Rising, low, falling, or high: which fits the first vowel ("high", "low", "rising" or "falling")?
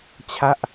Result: falling